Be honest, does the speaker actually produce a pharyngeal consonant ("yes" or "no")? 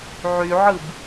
yes